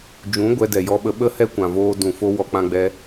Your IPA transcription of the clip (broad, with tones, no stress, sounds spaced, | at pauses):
d͡ʒ ũ˨˦ ɡʷ ɛ˧ d ɛ˨ j ɔ˧ ɓ ə˧ ɓ ə˦ h ɛ˦ kʷ ã˨ v oː˧ d ũ˨ f o˧ w ɔ˧ k͡p ã˧ ɡ͡b ɛ˧